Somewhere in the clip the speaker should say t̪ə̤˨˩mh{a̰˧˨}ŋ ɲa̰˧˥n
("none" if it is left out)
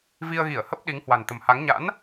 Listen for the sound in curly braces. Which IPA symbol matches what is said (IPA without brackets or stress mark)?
a˨˦